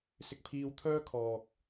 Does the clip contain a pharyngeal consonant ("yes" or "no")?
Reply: no